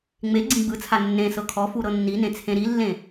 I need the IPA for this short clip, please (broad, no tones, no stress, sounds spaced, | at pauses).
ŋ͡m e ɡ͡ǀ ĩ ɡ͡b ɯ t͡sʰ a nː ẽ s ɤ kʰ ɔ f u ɾ ɤ nː i n ẽ t͡sʰ ẽ ɾ i lː ẽ